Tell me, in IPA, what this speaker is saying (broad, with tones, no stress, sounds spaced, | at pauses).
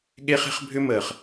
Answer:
ɠ e˦ χ e̤˦ χ bʱ ʏ˦ m əː˨ χ